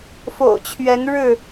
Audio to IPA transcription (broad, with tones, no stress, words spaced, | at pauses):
fo̰˨˩ʊ̯t͡ɕʰɥɛ˨˦nɻɻ̩˥˨